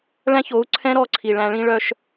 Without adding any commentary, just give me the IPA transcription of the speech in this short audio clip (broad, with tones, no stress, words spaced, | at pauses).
ɭæ̃˦ço˨˦u̯ǀʰɛ̃˦ ɾɔ˦˨ǀʰi˨ɭæ̃˧ɭĩ˦ ɭœ˦ʃ